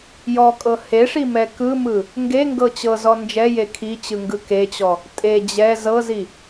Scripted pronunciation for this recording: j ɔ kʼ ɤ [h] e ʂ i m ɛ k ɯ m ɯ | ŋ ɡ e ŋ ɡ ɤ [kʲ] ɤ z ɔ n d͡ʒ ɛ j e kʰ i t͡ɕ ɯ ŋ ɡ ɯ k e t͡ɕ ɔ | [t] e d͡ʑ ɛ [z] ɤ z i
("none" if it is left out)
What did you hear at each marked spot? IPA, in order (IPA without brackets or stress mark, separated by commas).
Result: h, t͡ɕ, tʼ, z